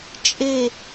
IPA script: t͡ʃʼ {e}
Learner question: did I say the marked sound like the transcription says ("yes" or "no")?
yes